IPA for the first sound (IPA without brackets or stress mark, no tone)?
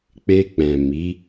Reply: k͡p